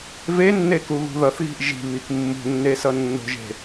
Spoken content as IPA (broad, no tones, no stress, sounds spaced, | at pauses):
v e nː e k u ɣ ṳ ð ʌ θ ɣ i̤ ʔ ʒ i̤ β i k mː ṳ nː e s ʌ nː o̤ ʒ e̤